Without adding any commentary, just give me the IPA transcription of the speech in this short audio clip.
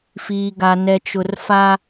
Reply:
f iː˨ ɡ a˨ n ɛ˨ t͡ʃ ʊ˨ r f a˦

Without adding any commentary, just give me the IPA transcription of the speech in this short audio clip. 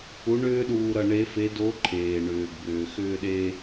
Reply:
u˧˥ ɳ ʏː˥ ɗ uː˧ ɾ ʌ˧ ɳ e˧˥ f e˧˥ d o˧˥ ǃʰ eː˩ ɳ ʏː˩ ɡ b ʏː˩ x ʏː˧ ɗ e˧

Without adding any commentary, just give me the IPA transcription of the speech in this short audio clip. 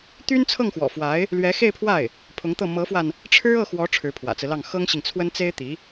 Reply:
t̪ y˥ n t͡sʰ ɤ˥˩ ŋ x w ɔ̰˨˩ f w a˧˥ ɪ̯ | l ɥ ɛ˧˥ x e˥˧ ɪ̯ pʰ w a˥˩ ɪ̯ | pʰ ʊ˧˥ ŋ t̪ ɤ˥˩ m ɤ˧˥ f w a˧ n | ʈ͡ʂʰ ɻ̩˥ ɤ˥˩ x w ɔ˧˥ ʈ͡ʂʰ ɻ̩˧˥ pʰ w ä̰˨˩ t͡s ɹ̩˦ l ɑ˥˩ ŋ x ɤ˥ ŋ ɕ i˨ ŋ t͡sʰ w ə˥ n t͡s e˥ ɪ̯ t̪ i˧˥

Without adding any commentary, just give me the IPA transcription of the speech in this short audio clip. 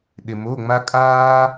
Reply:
ɗ ɪ˧ m o˧˥˧ ŋ͡m a˥ kʼ aː˥

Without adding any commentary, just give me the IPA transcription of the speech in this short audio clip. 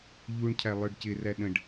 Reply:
ʎ u ɳ cʰ æ lˠ ə˞ ɖ c ɪ r æ ɗ ə̃ ɖ

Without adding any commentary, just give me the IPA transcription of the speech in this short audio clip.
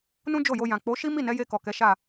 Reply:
n ũ˦ d͡ʒ o˦˨ j o˧ j ã˨ k͡p o˨˦ ʃ i˦ m i˦˨ n ɛ˨˦ j e˧ k ɔ˨ k ɛ˨˦ ʃ a˦˨

